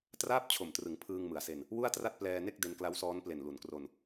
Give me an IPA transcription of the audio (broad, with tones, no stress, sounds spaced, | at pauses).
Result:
t r aː˥˩ p̚ t͡ɕʰ o˨˩ m t r ɯ˩˦ ŋ pʰ ɯː˧ ŋ m ɯ˩˦ a̯ s e˧ n | w u˥˩ a̯ t r a˥˩ t̚ p l ɛː˧ n e˥˩ k̚ d e˧ n k l a˦˥ w s ɔː˦˥ n p l e˨˩ n l u˩˦ n k r o˧ n